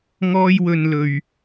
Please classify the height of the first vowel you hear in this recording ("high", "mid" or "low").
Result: mid